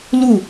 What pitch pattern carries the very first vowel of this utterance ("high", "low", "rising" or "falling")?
falling